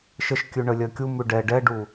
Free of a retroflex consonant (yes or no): no